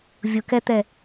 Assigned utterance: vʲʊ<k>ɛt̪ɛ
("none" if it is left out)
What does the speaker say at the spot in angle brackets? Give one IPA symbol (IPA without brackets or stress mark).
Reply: k